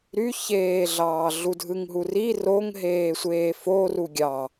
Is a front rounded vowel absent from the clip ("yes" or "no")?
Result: no